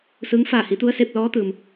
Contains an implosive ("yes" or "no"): no